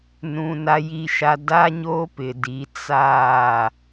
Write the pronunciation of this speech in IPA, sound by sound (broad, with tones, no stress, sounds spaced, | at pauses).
n ũ˨ n a˨ j i˨ ʃ a˨ d a˦ ɲ oː˦ p ɪ˨ d i˨˦ t͡s aː˦˨